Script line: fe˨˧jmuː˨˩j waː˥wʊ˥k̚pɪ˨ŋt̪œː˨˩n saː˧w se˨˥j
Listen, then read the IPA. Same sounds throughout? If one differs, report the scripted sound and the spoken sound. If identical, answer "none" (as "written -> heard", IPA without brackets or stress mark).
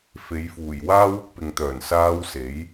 m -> f